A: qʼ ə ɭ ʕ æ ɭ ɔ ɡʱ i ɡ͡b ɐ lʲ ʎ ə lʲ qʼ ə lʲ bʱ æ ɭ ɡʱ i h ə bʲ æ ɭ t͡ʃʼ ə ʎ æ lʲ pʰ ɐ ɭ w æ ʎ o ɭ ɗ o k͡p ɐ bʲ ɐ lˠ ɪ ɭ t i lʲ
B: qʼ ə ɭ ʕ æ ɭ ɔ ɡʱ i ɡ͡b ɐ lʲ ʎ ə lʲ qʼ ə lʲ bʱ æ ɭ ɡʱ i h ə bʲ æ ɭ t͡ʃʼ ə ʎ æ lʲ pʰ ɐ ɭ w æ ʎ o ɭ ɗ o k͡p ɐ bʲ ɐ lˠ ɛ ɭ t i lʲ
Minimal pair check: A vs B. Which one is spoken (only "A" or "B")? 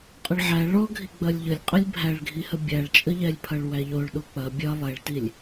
B